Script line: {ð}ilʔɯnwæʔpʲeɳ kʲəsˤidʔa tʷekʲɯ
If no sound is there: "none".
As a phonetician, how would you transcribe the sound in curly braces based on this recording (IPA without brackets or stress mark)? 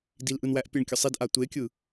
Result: d